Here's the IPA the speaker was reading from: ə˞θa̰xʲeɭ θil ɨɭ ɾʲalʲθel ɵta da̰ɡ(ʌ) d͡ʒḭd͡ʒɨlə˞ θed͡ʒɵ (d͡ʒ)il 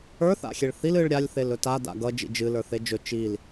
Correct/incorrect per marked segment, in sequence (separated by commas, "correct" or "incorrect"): correct, incorrect